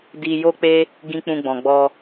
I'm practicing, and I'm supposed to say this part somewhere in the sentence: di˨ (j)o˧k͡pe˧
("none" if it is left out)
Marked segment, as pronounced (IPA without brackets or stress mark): j